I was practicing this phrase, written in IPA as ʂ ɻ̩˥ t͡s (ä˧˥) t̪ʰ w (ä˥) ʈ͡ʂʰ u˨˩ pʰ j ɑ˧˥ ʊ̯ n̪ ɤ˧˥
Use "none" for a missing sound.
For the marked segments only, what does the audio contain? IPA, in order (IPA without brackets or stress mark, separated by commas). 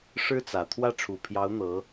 ä˨˩, ä˥˩